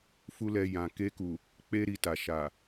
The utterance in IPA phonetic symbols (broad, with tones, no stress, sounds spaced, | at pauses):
f u˦ l ɛ˧ j ã˨ k e˧ k u˨ | k͡p e˦ ɾ i˧ t a˨ ʃ a˨